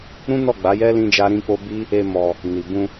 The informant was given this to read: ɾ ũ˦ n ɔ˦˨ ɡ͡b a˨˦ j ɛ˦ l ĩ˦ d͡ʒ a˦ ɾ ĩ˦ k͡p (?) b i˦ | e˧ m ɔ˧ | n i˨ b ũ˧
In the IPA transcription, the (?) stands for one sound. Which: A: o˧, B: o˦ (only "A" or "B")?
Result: B